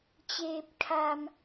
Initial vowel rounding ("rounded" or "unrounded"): unrounded